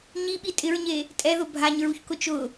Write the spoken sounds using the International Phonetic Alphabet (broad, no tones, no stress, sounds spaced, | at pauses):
ɲ i ɓ i tʼ ɪ ɹ ɲ e | tʼ ɛ ð ʊ bʱ a ɲ ɹ u ç k ʊ t͡ʃ ʊ